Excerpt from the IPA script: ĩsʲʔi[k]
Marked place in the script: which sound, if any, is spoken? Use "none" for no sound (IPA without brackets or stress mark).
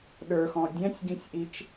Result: t͡ʃ